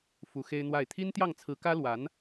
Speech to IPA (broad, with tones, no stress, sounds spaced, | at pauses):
f u˧˥ x e˥ ɪ̯ n̪ w a˥˩ ɪ̯ t̪ʰ i˥ n t̪ j ɑ˥˩ ŋ t͡sʰ ɹ̩˧˥ k ä˥ l w a˧˥ n